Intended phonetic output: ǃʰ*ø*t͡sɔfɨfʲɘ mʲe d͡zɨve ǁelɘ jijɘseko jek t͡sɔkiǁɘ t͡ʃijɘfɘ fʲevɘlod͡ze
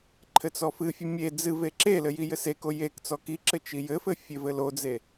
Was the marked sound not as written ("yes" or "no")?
yes